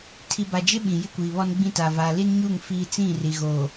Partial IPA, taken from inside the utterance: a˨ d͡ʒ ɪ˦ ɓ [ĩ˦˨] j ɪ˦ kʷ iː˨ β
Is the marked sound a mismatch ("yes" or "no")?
yes